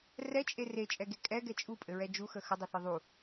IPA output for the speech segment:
r ɛ t͡ʃʼ e r e t͡ʃʼ ɛ ɡ e kʼ ɛ ɡ ɛ t͡ʃʼ u pʼ ɘ ɹ ɛ d͡ʒ u x ə x ə dˤ ɘ θ ɘ ðˤ u

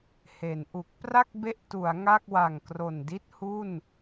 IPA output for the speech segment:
h e˩˦ n ʔ u˨˩ k̚ p r a˥˩ k̚ b e˦˥ ʔ t u˩˦ a̯ ŋ a˥˩ k̚ w a˨˩ ŋ k r o˨˩ n d i˥˩ t̚ h u˥˩ n

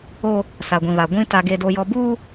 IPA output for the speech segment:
o˦ | s a˨ ɡʷ ĩ˨ β a˨ ɡʷ ĩ˦ t a˦ ɡ e˦ d o˦ j ɔ˦ b uː˦

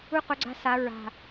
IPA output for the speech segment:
u˦ q o˨˦ ɡ͡ǀ a̤˦ s a˨˦ ɹ a̤˨˩

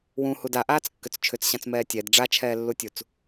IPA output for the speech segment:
w ũ h u d a ʔ aː t͡s kː ʏ t͡s t͡ʃʰ ʏ t͡s ɕ ã t͡s m ɛː tʲ ɛ d ɖ͡ʐ a t͡ʃʰ ɛː lː u tʲ u t͡s

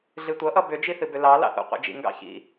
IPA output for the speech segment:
ɮ ɨ tʷ ʌ ʔ ʌ b ʏ d͡ʒ i θ ɨ b ʏ l ɑ l ɑ̰ θ ṵ qʷ ḛ d͡ʒ ḭ ŋ ɡ ɑ̰ ç ḭ

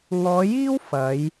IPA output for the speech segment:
ŋ ɔː˨˧ j iː˥ w f ɐ˨˧ j

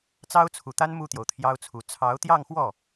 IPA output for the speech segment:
t͡s ɑ˥ ʊ̯ t͡sʰ u˨˩ t̪ a˥ n m u˥˩ t̪ j o˩ ʊ̯ t̪ʰ j ɑ˥ ʊ̯ t͡sʰ u˧˥ t͡sʰ ɑ˧˥ ʊ̯ t̪ j ɑ˥˧ ŋ x w ɔ˥˩

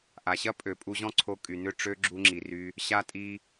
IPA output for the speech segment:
ʔ a˨ ɕ ɐ˦ pʼ ø˨ pʼ u˧ ʑ ɔ̃˦ ǀʰ o˧ kʼ y˨ n ʏ˦˨ ʈ͡ʂ ø˦ ɡ͡ǁ u˧ ŋ͡ǁ i˨ r y˧ | ɕ a˧ tʼ i˧

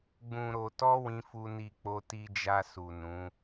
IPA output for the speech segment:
ɡ͡b ũ˨ ɾ o˨ t ɔ˧ w ĩ˦ f u˦ n i˦˨ k͡p o˧ t i˧ d͡ʒ a˧ s u˨ n ũ˨˦

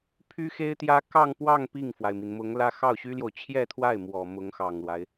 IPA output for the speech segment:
pʰ y˥ x e˥ ɪ̯ t̪ j ä˥ k ɑ˥˧ ŋ p w ɑ˥˧ ŋ p i˥˩ ŋ f w a˩ ɪ̯ m i˩ n m ʊ˧˥ ŋ l ä˥ x ɑ˥˩ ʊ̯ ɕ y˥ l j o˨ ʊ̯ t͡ɕʰ j ɛ˥˧ t̪ʰ w a˥˩ ɪ̯ m w ɔ˨˩ m ʊ˧˥ ŋ x ɑ˨˩ ŋ l w a˦ ɪ̯

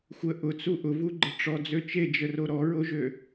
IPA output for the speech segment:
xʷ ə ʔ ʊ t͡s u ʔ ʊ v u ɡ͡ǃ ə ʈ͡ʂ ɔ d͡z ø t͡ʃ e d͡ʒ ə r o ɾ ɔ ɹ o ʒ ø

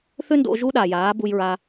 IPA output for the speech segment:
θ ʏ˦ n d o̰˧ ʒ u˦ ɗ a˨ j aː˨˦ b u˧ j ɹ a˧

